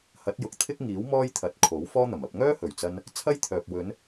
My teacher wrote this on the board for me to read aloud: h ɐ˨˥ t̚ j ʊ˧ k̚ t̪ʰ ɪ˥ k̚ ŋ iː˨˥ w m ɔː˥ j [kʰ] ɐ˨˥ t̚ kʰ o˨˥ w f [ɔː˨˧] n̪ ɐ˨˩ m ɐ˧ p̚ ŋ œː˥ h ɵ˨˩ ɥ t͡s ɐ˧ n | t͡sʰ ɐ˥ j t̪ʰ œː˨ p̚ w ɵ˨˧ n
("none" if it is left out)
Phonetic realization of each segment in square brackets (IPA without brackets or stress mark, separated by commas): t̪ʰ, ɔː˥